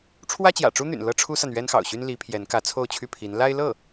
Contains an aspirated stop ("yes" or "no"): yes